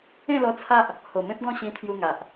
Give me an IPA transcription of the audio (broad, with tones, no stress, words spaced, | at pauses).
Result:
ẽ˥˧lɔ˧t͡sʰa˦ʔ | ho˨˩mẽ˦p̚ɡɔ̃˥˧ ɕĩ˧t̪ʰju˧ŋa˨ʔ